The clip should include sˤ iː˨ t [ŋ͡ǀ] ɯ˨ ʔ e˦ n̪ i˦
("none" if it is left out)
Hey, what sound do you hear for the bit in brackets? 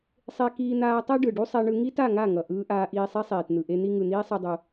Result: n̪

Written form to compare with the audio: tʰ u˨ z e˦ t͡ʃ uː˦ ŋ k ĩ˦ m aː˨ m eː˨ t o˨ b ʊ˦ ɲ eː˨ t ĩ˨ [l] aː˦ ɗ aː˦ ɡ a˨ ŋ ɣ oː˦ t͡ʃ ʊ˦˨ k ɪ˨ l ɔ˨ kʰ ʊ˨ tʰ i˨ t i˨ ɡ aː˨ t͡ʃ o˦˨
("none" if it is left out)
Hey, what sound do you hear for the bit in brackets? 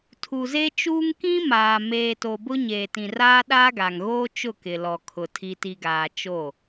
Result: r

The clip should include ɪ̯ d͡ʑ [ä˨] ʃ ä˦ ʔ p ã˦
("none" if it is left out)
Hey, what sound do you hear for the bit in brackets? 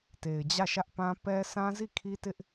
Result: ä˦˨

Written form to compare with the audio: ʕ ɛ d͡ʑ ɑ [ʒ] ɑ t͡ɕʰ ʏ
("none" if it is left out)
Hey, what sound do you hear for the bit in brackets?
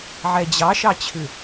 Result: ʃ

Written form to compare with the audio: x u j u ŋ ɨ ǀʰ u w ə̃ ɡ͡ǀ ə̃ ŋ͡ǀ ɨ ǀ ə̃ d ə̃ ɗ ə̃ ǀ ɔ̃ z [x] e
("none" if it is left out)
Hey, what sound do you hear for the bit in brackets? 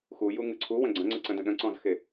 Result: x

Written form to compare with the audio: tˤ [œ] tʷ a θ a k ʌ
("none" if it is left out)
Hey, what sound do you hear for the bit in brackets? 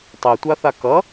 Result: ø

